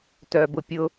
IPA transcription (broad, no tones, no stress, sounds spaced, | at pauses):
t œ b ʊ pʲ ʊ